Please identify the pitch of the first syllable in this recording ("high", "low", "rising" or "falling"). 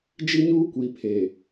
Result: high